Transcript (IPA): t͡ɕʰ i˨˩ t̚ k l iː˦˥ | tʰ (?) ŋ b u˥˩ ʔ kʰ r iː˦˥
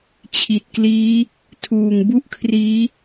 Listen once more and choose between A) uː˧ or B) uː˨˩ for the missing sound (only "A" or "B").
B